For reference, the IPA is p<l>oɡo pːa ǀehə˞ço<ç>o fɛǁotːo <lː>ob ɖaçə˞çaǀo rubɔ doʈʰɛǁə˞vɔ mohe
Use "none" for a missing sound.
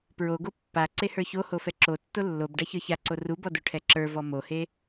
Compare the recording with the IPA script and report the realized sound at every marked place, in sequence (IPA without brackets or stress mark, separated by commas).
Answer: ɹ, h, lː